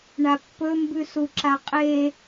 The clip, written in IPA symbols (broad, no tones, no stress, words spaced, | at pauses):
ɳapːɵmbʉsu ǁaqʼe